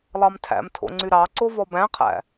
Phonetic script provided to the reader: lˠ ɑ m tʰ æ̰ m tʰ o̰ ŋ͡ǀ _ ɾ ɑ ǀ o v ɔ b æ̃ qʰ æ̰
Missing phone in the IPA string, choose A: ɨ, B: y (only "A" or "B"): B